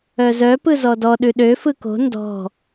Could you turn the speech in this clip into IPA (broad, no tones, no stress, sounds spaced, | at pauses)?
œ z œ p ɯ z ɔ d ɔ ɗ ʉ ɗ ø f ɯ k o̤ n d ɔ̤